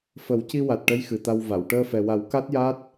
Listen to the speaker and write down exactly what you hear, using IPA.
fə˨˩˦wci˧ wa˨˩t̚ʈə˧˥j xɨ˨˩t̪a˧wva˨˩˨w ʈəː˧fɛ˨˩wa˨˩˦w ka˦˥t̚ja˦˥t̚

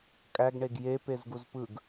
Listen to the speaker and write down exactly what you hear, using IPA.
kʼæɡɳeɡ jepezɡuz pɯɡ

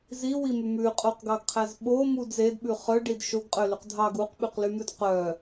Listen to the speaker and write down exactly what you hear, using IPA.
ziwimʉ mʉqʼoqɡɑɡqʰæz ɓomud zedɓʉ χœɖid ʃoɡqʼølyq dʱɑɡ uqɓyqlymʉd qœ

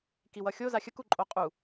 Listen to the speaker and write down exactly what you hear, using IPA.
kiwʌxʲo zaxʲəku ǃʼoqʼu

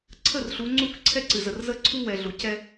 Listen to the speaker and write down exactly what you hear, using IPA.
ǀʰə˦˨rɬu˨˦ ŋ͡ǀu˦˨kǀʰɛ˦ǀɨ˨zə˨r zə˦ǀʰu˦ wɛ˨ɮu˨ cɛ˦

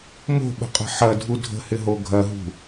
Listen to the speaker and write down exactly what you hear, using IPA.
mo̤ɓə̤qʼə̤ ħɐdʱu dʱə̤hɪɦo ɡʱɐɦṳ

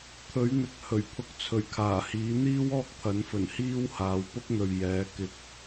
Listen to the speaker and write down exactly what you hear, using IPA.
t̪ʰɵ˨˥ɥn̪ɪ˨k̚ hɵ˨˩ɥpʰʊ˧k̚ t͡sʰɵ˨˩ɥkʰaː˨˩hiː˨˥ n̪iː˥wɔː˥k̚t̪ʰɐ˨˥nfɵ˨˩n hiː˥whaː˨w pʊ˥k̚n̪ɵ˨ɥ jɛː˨˥kɪ˧k̚

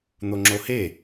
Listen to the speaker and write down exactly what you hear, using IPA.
n̪oŋ͡ǁohe

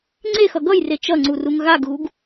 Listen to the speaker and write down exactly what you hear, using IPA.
ŋ͡ǀexʌ ɡʌjre t͡ʃʌŋ͡ǀuruŋ ɣaɡɣuɡ

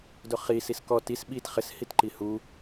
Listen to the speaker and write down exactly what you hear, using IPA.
dʊχisis kɔ tis ɓit χɪshitǃi hu

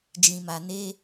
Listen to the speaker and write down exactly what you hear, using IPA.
d͡ʒĩ˧ma˧ ne˦

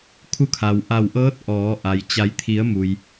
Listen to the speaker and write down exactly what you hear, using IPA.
kʰu˧ kʰa˩wʔa˧˩wʔɤː˧˥t̚ ʔɔː˩˧ʔa˩j t͡ɕa˩˧jt̪ʰi˩˧ə̯ mu˩j

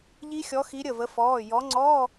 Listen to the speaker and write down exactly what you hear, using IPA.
ʎi˦˥xʲɔ˨˦xi˨˦ ɾʲə˧˩və˨˦fɔː˩˧˩ jɔ˨˦ ŋ͡ǀɔ˧˥˧

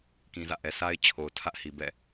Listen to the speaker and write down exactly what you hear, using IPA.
kĩ˨zä̰˦˨ʔɛ˨ sa˦ɪ̯ t͡ɕʰo˨ʊ̯tʰä˦ʔhi˨ bɛ̰˦˨

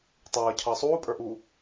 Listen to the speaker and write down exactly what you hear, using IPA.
tˤʌːcʰʌː sˤuːpʼə˞ʔuː

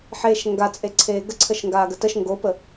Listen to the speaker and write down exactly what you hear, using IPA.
ħeːʃŋɡat͡sʼe ǀʰeːɡə ǀʰəʃŋɡaːɡətəʃ ŋɡopə

